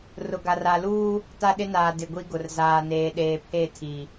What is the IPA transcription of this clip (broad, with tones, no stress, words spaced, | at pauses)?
rʊ˨ɡa˨ra˨luː˦ | ta˦ɗɪ˦naː˨ dɪ˨ɡʷi˦ɡʊ˨r zaː˨neː˨ɗeː˨ pʰe˦˨tʰi˨